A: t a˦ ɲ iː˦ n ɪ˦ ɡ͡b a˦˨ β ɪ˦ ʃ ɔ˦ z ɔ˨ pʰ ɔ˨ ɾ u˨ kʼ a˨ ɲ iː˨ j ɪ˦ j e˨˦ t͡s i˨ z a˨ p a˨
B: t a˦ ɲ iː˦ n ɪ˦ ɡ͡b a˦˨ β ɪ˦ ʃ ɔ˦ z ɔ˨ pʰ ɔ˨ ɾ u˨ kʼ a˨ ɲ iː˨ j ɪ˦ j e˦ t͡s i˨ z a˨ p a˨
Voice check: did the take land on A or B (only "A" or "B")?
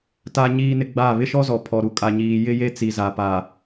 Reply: B